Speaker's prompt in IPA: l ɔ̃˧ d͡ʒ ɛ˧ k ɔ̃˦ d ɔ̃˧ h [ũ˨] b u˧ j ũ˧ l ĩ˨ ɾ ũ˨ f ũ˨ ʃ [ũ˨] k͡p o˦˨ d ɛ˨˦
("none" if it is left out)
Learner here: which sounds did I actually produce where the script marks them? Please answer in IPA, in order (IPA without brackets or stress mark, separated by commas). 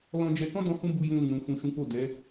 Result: ũ˦, ũ˨˦